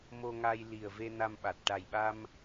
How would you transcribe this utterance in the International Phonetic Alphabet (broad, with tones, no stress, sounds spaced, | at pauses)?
m o˧ ŋ a˧ j l i˨˩ ə̯ v e˧ n a˧ m ɓ a˨˩ t̚ ʈ a˨˩ j ɓ a˧ m